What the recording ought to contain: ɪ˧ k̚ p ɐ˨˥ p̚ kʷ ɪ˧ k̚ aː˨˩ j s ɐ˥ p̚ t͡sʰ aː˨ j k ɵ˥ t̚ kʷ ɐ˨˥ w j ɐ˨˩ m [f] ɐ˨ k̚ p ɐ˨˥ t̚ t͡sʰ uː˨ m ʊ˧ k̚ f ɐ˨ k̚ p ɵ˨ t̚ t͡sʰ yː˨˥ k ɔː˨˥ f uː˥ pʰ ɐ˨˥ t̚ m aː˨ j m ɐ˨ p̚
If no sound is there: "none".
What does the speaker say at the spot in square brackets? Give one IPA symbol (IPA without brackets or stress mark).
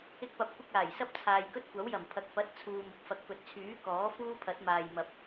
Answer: pʰ